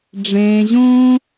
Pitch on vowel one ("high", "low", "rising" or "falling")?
low